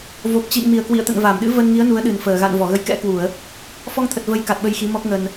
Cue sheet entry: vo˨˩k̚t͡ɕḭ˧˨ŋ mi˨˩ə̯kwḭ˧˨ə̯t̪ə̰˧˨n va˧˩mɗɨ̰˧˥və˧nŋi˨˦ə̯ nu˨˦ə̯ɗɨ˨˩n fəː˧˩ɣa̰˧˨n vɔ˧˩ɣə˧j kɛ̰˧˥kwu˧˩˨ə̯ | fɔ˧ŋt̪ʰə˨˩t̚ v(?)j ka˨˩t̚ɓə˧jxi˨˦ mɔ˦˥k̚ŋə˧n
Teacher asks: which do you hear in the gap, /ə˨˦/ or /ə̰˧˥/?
ə˨˦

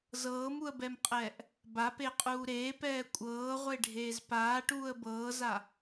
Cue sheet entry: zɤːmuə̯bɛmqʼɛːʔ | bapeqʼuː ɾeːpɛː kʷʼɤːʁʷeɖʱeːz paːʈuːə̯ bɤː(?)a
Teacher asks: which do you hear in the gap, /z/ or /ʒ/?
z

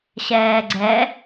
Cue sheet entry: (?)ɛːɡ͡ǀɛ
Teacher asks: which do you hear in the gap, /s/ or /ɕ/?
ɕ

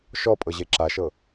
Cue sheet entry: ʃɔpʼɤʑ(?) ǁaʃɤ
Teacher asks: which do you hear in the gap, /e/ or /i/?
e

